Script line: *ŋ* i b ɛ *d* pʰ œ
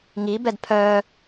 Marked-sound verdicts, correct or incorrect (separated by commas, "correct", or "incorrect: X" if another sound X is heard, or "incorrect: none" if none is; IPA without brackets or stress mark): correct, correct